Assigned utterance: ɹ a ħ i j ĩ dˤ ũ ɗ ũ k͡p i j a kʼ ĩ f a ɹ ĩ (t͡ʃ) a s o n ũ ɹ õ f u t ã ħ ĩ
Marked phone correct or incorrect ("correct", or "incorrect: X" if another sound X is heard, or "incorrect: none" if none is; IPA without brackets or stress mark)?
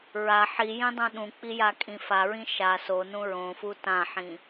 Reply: incorrect: ʃ